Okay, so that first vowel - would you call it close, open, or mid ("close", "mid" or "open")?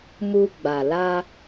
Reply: close